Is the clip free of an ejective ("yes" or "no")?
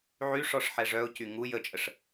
no